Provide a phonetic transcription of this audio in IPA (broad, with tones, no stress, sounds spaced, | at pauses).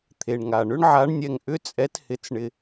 t̪ʰ e˩ ɳ ŋ a˩ ɳ ʏ˧˥ ɳ ʕ a˧˥ ɳ nʲ ɛ˧ ŋ ʔ ʏ˧˥ t͡sʼ ɛ˧˥ t h ɪ˧˥ t͡s ɳ ɪ˧